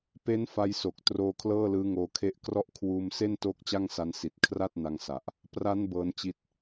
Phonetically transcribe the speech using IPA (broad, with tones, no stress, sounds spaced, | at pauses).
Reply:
p e˦˥ n f a˧ j s o˨˩ k̚ t r oː˧ kʰ l ɤː˥˩ l ɯː˦˥ ŋ oː˧ kʰ e˥˩ ʔ k r ɔ˦˥ ʔ kʰ w uː˧ m s e˥˩ n t o˦˥ k̚ t͡ɕ a˥˩ ŋ s a˦˥ n s i˨˩ t̚ kʰ r a˥˩ t̚ n a˧ ŋ s a˨˩ ʔ | p r a˦˥ n b ɤː˦˥ n t͡ɕ i˦˥ t̚